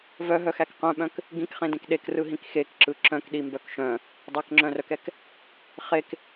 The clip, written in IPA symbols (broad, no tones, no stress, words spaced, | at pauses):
vœɦœxæk qœ̃ɓœ̃k | ɡĩkχẽdẽk ɗekrɯɦĩk xekǁɯ ǁœ̃kɗimbœk ʃœ̃ | dˤɛkŋ͡ǁœ̃rœkɛk | χek